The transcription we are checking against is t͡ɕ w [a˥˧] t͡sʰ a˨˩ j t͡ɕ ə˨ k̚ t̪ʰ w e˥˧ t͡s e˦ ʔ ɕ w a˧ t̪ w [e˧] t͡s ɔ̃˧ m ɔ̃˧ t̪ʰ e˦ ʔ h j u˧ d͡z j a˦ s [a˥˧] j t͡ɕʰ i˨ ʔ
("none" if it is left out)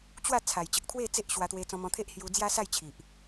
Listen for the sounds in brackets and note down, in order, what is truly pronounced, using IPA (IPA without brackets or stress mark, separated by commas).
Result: a˥˧, e˧, a˥˧